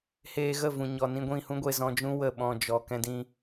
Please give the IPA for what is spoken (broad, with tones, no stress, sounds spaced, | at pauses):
h eː˧ ɣ ə˦˨ v ũ˨ ɲ ɔ˨ n ĩ˧ ɡʷ ĩ˦˨ h ũ˦ ɡʷ e˧ z ɔ̃˧ d͡ʒ ũ˦ w ə˦˨ ɓ ɔ̃˧ d͡ʒ ɔ˨ k ɛ̃˧ d ĩ˧